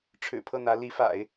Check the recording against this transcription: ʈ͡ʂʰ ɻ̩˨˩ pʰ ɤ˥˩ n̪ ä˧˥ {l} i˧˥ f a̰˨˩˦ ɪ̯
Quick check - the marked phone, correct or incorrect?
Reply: correct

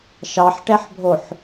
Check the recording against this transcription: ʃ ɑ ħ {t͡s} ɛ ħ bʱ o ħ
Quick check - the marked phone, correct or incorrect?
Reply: incorrect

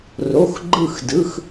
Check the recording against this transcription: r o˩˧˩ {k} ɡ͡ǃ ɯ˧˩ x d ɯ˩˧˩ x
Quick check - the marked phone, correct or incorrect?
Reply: incorrect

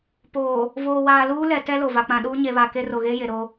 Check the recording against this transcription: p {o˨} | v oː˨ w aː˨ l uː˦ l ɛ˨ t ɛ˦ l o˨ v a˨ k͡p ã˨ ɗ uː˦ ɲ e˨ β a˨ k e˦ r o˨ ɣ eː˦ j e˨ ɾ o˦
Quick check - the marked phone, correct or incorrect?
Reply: incorrect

